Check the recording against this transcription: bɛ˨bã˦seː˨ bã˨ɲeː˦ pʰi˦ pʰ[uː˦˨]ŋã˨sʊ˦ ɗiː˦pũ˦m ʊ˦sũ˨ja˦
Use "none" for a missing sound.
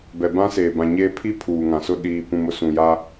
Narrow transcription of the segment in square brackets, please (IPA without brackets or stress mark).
uː˨